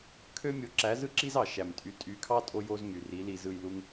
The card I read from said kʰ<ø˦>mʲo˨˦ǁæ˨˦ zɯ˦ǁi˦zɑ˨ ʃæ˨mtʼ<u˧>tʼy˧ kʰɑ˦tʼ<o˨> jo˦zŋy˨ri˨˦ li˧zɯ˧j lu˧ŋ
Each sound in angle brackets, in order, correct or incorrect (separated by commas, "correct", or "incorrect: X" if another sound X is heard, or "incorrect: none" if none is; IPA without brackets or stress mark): correct, incorrect: y˧, incorrect: o˧